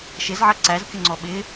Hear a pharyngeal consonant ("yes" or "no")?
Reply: yes